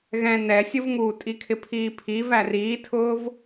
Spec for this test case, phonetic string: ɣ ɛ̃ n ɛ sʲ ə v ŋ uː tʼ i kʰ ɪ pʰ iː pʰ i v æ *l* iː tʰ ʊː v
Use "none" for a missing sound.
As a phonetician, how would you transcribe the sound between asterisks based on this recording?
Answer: r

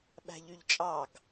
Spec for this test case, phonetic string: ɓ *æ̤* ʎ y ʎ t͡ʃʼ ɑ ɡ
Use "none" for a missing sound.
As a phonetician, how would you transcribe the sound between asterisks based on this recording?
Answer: æ̤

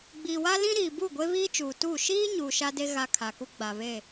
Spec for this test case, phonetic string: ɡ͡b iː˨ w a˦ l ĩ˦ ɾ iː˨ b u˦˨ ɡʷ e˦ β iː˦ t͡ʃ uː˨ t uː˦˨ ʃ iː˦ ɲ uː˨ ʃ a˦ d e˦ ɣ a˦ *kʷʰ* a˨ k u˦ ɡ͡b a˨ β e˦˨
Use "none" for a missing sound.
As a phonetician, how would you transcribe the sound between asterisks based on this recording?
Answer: kʰ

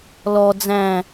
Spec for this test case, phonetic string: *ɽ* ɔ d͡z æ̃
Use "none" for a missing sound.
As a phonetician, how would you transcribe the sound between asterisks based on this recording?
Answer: l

